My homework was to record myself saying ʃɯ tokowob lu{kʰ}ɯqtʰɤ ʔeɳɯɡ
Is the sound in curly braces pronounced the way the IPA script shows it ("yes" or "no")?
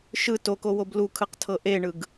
yes